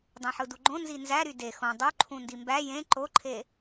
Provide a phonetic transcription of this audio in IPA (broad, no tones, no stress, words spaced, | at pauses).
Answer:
dˤẽħɯduɡ͡ǃõ nzinzæɾy de xõ dˤo ǃʰũndimbæ jẽ ǃoǃʰe